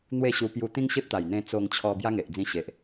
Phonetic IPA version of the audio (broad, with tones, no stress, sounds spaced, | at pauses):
n̪ w e˥˧ ɕ u˧ p j u˧ t̪ ĩ˦ ŋ ɕ e˦ p̚ t̪ a˨˩ j n̪ ẽ˧ t͡s o˧ ŋ t͡ɕʰ ɔ˧ b j a˦ ŋ e˨ ʔ d͡z ĩ˧ ɕ e˨ ʔ